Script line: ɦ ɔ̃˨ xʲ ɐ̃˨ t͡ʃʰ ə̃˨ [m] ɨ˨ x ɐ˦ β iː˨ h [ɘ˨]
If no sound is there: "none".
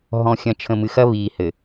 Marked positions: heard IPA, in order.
m, ɘ˨

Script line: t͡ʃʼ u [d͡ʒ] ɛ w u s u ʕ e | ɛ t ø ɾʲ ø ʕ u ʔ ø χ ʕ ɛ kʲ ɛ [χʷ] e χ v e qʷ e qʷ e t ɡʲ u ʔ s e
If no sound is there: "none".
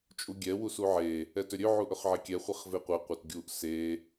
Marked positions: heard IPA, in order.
ɡʲ, χʷ

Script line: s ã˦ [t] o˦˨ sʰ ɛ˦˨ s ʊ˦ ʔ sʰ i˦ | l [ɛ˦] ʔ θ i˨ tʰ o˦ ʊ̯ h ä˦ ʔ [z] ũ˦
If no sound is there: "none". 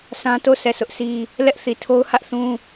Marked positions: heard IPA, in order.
t, ɛ˦, θ

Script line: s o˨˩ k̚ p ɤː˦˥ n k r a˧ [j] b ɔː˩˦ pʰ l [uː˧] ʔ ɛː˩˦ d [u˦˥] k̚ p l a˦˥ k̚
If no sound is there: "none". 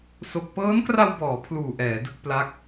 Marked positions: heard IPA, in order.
w, uː˨˩, ɯ˦˥

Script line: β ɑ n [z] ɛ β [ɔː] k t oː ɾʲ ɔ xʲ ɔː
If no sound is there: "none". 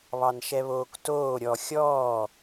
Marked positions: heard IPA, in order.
ʃ, oː

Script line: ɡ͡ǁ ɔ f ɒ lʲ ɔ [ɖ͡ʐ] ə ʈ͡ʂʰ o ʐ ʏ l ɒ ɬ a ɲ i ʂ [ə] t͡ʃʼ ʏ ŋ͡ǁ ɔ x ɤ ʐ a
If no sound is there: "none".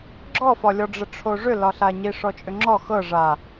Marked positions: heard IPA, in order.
ɖ͡ʐ, ɔ

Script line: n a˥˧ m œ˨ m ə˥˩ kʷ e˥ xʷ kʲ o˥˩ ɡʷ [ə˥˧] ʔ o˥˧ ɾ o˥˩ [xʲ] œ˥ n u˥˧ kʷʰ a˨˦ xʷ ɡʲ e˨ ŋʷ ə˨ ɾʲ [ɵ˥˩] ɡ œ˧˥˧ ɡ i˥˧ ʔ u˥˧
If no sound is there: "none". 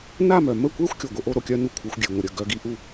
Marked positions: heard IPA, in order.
ə˥, kʲ, ə˥˩

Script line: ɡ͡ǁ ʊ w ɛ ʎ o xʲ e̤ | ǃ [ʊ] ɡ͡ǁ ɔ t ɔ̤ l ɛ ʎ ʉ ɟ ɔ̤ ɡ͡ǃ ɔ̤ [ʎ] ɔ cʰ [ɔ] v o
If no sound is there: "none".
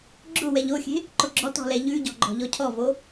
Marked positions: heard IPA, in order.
ʊ, ʎ, ɔ

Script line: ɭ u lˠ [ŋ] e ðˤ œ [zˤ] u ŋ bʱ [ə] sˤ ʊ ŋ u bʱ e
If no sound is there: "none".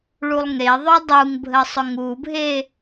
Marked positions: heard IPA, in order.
ŋ, dˤ, ə

